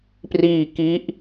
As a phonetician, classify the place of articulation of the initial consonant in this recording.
labial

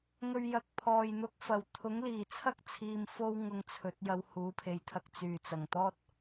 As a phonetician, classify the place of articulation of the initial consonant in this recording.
velar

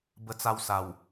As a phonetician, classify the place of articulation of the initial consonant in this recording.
labial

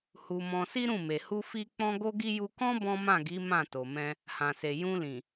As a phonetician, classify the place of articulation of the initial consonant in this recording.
glottal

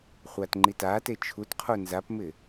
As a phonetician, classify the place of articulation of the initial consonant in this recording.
uvular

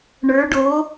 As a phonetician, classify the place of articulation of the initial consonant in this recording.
retroflex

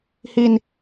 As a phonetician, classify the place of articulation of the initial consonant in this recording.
glottal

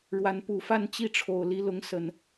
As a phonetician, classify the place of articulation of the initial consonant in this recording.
retroflex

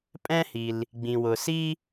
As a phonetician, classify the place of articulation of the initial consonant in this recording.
labial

